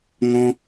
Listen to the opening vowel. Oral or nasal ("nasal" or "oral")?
nasal